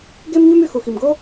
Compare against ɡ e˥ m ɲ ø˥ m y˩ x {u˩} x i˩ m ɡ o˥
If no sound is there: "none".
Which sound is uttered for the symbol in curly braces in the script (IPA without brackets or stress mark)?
u˩